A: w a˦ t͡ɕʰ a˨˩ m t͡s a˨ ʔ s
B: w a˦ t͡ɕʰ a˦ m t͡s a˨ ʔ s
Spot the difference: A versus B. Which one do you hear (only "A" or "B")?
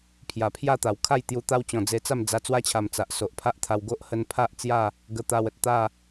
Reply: A